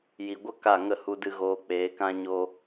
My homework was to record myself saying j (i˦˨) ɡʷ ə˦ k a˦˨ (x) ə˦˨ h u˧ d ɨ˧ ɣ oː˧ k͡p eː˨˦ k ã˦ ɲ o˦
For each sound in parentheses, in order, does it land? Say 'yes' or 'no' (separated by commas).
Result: no, no